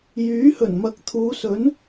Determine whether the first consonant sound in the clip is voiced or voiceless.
voiced